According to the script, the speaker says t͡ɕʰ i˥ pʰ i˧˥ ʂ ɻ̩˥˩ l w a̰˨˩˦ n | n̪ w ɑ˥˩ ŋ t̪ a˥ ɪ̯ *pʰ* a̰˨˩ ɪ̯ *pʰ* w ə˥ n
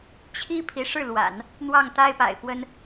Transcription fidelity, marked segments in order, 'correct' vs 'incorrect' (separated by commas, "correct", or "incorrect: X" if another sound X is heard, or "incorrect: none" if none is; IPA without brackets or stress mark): incorrect: p, incorrect: p